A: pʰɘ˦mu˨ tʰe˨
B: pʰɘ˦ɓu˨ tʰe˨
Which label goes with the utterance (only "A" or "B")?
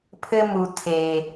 A